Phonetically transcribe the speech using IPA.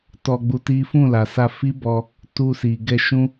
t ɔ˧ ɡ͡b u˧ t i˦ f ũ˦˨ l a˨ s a˧ f i˦ b ɔ˧ | t u˧ s i˨ ɡ ɛ˧ ʃ ũ˦

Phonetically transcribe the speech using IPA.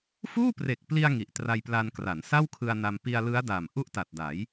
f uː˥˩ p r e˨˩ k̚ p l i˧ a̯ ŋ i˨˩ ʔ t r a˧ j p l a˧ n k r a˩˦ n s a˥˩ w kʰ ɯ˧ a̯ n a˧ m p i˧ a̯ l ɯ˦˥ a̯ d a˨˩ m ʔ u˥˩ ʔ t a˨˩ t̚ d a˩˦ j

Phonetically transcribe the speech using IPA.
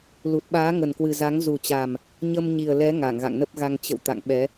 l u˨˩ t̚ ɓ aː˨˦ ŋ ə˨˩ n k w ɨ˨˩ z a˨˦ ŋ z u˨˩ t͡ɕ a˨˩ m | ɲ ə˧ m ɲ i˨˩ ə̯ l ɛ˨˦ ŋ a˧˩ ŋ ɣ a̰˧˨ ŋ n ə˦˥ p̚ ɣ a˧ ŋ t͡ɕ ə̰˧˨ w t̪ a̰˧˨ ŋ ɓ ɛ˨˦

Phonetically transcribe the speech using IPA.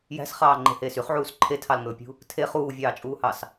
j æ̤ s χ ɑː ŋ͡ǃ e̤ h eː s y χ ʕ uː s ǃʰ e tʰ ɑ l ŋ ɵː pʲ ṳ | tʰ e χ uː vʲ ɑː t͡ʃʼ uː h ɑ s

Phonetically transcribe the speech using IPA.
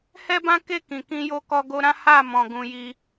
h ɛ˦ b ã˦ k e˦˨ k ĩ˨ k ĩ˧ j o˧ k ɔ˧ ɡ o˧ ɾ ã˦ h a˦˨ m ɔ̃˨ ɡ ũ˧ j i˧

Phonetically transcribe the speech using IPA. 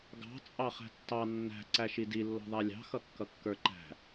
ɡ ɑ̤ t͡sʼ ɑ χ æ̤ tː ɑ nː æ̤ ǀ æ ʃ i d i lː ɔ̤ ðˤ æ lʲ ɑ̤ x ʌ kː ʌ kː ə˞ ǃ æ̤

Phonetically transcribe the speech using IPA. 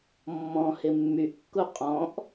mː ɔ̃ h ɪ mː y ʔ kː u qʼ ɔ̃ ʔ

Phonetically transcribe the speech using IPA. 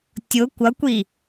tʲ ʊ kʷ ʌ kʷ i

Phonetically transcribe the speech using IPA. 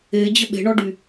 e d͡ʑ ə ɓ e̤ ɳ ɔ ɖ y

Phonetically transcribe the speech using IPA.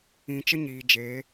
ĩ˨ t͡ʃ ə˦ ɲ iː˨ d͡ʒ eː˨˦

